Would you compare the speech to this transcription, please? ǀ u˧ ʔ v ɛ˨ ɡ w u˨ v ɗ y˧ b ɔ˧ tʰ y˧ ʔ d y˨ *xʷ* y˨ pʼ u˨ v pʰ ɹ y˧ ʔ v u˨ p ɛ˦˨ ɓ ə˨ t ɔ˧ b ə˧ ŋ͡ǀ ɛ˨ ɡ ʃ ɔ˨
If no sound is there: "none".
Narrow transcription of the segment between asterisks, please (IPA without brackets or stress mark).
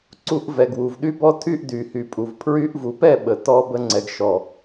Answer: h